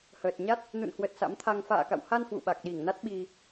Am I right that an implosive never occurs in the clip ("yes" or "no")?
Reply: no